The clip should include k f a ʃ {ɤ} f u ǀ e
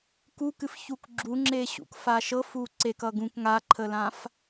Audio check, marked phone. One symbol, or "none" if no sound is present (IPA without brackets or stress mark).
ɤ